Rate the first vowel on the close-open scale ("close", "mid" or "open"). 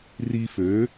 close